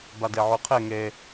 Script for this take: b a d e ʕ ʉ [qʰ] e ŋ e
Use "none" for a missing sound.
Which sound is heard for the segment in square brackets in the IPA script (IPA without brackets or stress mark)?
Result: qʰ